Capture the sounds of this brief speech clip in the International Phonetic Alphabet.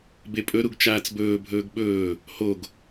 b e pʼ ɵ ɾ u ɡ t͡ʃ aː t͡s b ɵː bʱ ɵː ɡ ɓ ɵː | h o ɡ

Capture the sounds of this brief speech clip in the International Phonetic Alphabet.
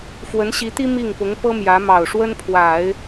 f w ə˧˥ n ɕ i˧˥ t̪ i˥ m i˥˩ ŋ p ʊ˧˥ ŋ p ɤ˥ m j ä˧˥ m ɑ˨˩ ʊ̯ ʂ w ə˥ n pʰ w a˨˩˦ ɪ̯

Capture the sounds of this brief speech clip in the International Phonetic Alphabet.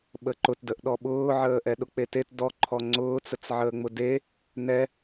ɓ ə ǃ ʊ t d ə ʔ ɗ ɔ ɓ ʊː ʕ əː ʔ ɛ ɗ ʊ k͡p e t e t d ɔ ǃʰ ɔ ŋ͡ǀ ʊː t͡s ə t͡s ʕ əː ŋ͡m ʊ d e | n ɛ

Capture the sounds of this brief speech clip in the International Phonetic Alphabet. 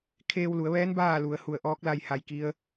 kʰ eː˧ w l u˩˧ ə̯ ʋ ɛː˧˥ n b aː˥˨ l u˩˧ ə̯ h u˧˩ ə̯ ʔ ɔː˧˥ k̚ l a˥˨ j h a˧˩ j k i˧˥ ə̯

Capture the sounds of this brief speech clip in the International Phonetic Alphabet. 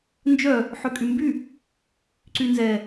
n d͡ʒ œ | ħ ø kʼ y m b y | ǀ y n z ɛ

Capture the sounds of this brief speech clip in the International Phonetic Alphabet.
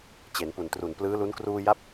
t͡ɕ e˩˦ n p u˨˩ n t r u˨˩ n p l ɯː˦˥ l u˦˥ n k r uː˧ j a˦˥ p̚

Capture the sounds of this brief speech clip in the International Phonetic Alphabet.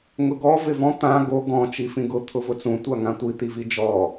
ŋ ʊ ɡ ɔ v ɪ v ɔ̃ t̪ ã ɡ o ɡ ɔ̃ t͡ʃ i f ĩ ɡ ʊ t̪ʰ ʊ v ʊ t͡s ũ tʷ a ŋ ã tʷ i t̪ i v i d͡ʒ ɔ

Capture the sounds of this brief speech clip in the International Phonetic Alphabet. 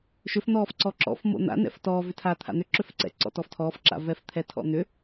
ʃ ʏ f n̪ ɔː f ǀ ɔ ǁ ɔ̰ f m o̰ n̪ a̰ n ɛ̰ f t ɔː v ʏ tʰ aː t̪ʰ a̰ n̪ ʏ ǁ ø f ǀ ɛ̰ ǀ ɔ̰ t ɔ f tʰ ɔː f ǁ a̰ v ɛ f t̪ʰ ɛ tʰ ɔ̰ n̪ ʏ

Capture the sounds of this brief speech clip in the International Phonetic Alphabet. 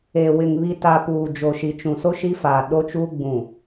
e˨ w ɪ˨ ŋ β i˨ t a˨ p uː˨ d͡ʒ o˨ ʃ i˨ t͡ʃ ũ˨ s o˦ ʃ i˦ f aː˨ ɗ o˦ t͡ʃ uː˦ ɡ͡b ũ˨

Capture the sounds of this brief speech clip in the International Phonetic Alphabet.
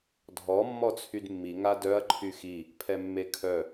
dʱ ɔ mː ɔ t͡sʰ y d mː i ŋ a d œ ɐ̯ ǃʰ y x i | pʰ ɛ mː e kʰ œ

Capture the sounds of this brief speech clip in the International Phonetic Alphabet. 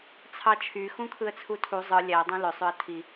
t͡sʰ ɑ t͡ʃʰ y x ũ kʰ ɯ ə̯ t͡sʰ u tʰ u zˤ ɯ lʲ æ dˤ õ l ø sˤ ø ə̯ tʰ i

